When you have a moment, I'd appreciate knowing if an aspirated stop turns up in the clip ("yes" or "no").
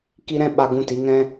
no